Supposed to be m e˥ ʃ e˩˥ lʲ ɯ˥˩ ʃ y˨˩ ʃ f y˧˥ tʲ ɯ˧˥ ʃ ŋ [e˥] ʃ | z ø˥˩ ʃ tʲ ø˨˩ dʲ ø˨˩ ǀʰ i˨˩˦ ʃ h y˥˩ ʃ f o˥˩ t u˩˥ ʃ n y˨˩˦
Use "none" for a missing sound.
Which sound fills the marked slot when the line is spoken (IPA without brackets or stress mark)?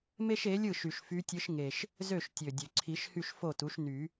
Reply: e˨˩